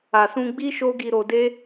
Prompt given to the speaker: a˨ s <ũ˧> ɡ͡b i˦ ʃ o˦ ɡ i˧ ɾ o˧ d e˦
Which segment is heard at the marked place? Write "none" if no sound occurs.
ũ˧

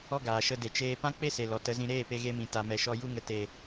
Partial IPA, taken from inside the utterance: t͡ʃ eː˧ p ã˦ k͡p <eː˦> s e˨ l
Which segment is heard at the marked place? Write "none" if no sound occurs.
e˦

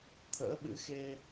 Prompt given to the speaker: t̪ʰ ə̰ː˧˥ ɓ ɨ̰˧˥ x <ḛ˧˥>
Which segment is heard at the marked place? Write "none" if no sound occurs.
e˧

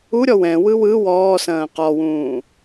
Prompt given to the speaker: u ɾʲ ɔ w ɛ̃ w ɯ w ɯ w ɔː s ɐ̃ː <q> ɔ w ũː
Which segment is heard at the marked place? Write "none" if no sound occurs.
q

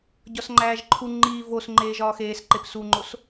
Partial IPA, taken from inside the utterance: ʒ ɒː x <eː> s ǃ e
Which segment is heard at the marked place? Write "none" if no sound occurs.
eː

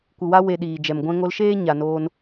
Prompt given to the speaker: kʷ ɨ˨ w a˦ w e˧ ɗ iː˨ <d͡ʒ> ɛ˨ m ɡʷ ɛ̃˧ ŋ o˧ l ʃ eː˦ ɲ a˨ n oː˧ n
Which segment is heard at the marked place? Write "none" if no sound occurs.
d͡ʒ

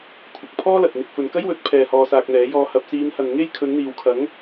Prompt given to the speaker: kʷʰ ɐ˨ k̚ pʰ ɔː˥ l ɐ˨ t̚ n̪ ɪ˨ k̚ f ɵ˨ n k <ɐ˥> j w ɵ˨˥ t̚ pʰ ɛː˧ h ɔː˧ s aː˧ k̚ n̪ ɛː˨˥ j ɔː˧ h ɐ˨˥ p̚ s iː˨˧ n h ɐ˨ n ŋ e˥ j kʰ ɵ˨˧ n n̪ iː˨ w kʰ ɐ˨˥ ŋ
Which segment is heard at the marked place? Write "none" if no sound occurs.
ɐ˥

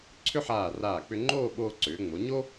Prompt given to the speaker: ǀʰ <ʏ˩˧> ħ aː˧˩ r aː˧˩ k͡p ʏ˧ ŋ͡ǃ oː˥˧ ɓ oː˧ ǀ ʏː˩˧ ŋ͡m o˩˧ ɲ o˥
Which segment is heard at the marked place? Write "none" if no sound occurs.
ʏ˥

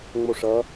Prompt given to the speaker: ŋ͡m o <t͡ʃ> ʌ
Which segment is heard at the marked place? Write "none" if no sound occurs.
ʂ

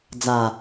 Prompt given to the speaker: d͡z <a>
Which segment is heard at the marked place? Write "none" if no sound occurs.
a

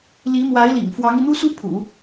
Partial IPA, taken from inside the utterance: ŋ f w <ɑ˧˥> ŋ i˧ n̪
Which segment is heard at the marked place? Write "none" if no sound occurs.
ɑ˧˥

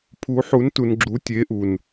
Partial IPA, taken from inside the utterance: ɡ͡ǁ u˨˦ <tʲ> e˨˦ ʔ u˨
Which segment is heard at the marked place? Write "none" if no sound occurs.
tʲ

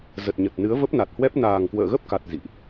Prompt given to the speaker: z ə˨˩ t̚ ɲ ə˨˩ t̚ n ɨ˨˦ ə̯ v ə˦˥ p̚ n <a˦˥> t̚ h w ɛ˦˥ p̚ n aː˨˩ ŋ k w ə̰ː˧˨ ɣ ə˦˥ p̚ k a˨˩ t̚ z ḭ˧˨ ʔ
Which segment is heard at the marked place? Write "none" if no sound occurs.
a˨˩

